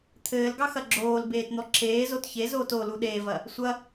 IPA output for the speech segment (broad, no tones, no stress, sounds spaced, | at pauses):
t̪ʰ ɘː l ɡ ɑ x ɐ ɡ͡ǁ oː l b eː t n̪ ɔ ǁʰ eː z o t ç e z oː t o l u ɗ eː v ɐ | sʷ ɐ